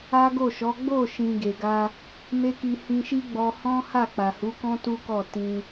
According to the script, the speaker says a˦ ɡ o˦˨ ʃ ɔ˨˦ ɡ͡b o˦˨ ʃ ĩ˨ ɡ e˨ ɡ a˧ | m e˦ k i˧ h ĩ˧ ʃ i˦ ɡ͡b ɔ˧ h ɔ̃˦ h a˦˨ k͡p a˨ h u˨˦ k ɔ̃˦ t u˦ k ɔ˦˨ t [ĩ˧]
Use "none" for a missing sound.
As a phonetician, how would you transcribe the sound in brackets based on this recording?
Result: ĩ˧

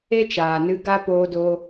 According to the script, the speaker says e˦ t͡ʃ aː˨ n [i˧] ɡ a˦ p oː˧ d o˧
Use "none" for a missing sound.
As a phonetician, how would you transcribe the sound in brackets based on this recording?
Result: ɨ˧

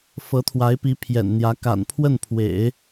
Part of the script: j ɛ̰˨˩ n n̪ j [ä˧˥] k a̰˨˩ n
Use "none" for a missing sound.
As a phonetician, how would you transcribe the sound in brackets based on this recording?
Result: ä˧˥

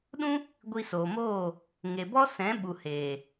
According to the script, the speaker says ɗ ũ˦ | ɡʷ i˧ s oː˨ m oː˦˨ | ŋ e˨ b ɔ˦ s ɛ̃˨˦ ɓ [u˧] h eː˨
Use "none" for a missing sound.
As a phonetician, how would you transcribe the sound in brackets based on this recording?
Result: u˨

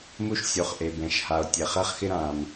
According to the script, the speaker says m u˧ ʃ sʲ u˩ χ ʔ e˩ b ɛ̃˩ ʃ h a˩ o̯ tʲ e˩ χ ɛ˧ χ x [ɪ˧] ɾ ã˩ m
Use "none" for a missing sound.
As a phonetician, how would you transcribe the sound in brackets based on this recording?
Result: ɪ˧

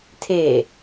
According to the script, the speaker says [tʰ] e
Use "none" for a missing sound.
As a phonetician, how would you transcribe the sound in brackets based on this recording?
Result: tʰ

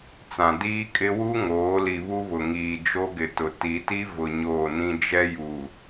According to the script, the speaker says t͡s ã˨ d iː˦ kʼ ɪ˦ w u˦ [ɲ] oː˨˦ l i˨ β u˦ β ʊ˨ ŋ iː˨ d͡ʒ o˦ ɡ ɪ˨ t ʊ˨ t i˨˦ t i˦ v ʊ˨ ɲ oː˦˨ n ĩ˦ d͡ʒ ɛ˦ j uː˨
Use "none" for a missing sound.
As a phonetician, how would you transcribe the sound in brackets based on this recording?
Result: ŋ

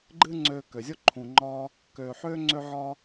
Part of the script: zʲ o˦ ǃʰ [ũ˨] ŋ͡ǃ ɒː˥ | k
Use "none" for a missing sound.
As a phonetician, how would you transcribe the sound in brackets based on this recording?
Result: ũ˨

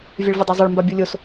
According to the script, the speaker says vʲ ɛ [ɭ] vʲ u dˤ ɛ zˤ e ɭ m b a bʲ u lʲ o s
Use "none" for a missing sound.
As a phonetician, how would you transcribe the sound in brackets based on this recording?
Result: ɭ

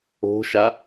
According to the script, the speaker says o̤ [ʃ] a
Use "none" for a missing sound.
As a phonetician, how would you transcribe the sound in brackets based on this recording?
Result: ʃ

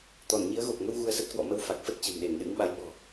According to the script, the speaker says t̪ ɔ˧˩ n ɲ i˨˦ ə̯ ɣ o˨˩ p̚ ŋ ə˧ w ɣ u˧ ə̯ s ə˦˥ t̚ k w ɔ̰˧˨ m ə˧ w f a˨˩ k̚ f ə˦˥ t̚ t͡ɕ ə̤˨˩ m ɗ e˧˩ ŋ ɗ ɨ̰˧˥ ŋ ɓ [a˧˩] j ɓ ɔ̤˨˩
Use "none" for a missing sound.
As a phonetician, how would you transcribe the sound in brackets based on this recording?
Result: a˨˦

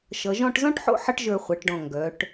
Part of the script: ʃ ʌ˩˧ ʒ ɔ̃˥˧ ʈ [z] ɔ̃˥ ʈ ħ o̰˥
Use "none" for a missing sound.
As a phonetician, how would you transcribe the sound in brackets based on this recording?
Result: z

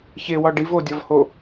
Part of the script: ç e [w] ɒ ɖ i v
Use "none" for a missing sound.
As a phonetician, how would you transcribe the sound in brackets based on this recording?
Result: w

